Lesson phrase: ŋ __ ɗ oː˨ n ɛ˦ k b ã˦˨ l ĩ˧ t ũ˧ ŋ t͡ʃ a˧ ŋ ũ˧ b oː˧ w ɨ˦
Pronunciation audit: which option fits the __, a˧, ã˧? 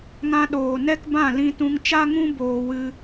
ã˧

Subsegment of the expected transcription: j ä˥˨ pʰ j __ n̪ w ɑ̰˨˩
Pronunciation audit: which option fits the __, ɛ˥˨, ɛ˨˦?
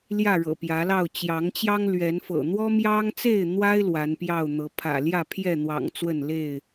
ɛ˥˨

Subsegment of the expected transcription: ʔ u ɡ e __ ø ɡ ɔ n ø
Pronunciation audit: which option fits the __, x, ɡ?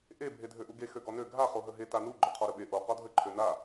x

